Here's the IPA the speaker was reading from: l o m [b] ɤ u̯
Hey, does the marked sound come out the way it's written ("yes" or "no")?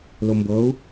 yes